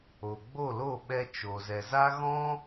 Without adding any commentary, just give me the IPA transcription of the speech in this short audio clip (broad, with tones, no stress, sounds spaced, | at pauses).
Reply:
o˨ ɡ͡b o˦˨ l o˦˨ ɓ ɛ˧ t͡ʃ o˨ z ɛ˨ z a˦ ɣ ɔ̃˦